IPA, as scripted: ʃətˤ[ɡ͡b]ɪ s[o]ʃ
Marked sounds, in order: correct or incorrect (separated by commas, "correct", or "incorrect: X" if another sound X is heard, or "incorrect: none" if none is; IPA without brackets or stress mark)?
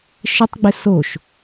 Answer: correct, correct